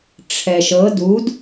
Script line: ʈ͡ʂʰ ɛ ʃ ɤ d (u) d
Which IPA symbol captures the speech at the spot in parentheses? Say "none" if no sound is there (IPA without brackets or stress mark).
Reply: u